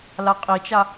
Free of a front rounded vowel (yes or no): yes